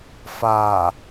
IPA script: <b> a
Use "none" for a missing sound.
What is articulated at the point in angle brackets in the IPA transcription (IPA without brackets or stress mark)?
f